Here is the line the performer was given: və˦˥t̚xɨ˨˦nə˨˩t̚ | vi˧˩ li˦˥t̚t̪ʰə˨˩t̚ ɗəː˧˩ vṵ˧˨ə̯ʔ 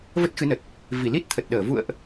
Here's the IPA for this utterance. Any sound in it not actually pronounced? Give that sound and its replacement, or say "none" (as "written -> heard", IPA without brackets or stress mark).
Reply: none